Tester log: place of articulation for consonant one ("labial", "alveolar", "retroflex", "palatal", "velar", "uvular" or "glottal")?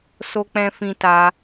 alveolar